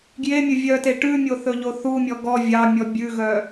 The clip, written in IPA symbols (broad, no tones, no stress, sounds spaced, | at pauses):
ɡ j e mʲ ɵ vʲ œ t e ʈ ʉ mʲ o θ ɵ ʎ o θ u mʲ ɔ ɡ ɔ vʲ ɑ mʲ ɔ bʲ ʉ ɣ œ